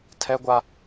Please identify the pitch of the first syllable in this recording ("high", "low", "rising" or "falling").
high